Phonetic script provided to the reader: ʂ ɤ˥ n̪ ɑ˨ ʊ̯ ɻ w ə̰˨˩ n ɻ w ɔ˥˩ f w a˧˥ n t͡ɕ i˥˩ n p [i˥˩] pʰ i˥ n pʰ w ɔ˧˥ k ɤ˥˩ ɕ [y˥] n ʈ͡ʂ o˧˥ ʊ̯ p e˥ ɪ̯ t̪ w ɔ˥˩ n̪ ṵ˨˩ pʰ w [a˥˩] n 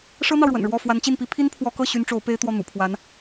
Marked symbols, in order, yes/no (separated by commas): no, yes, no